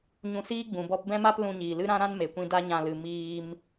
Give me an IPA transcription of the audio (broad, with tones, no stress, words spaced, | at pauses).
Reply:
ɲũ˧siː˦ɡ͡bũ˨ bɔ˧pbɛ̃˦ma˦p lũ˧ɲiː˨lɨ˦ɾã˦ ɾã˦nme˨kʷĩ˧ da˦ɲã˧ lɨ˨ miː˧m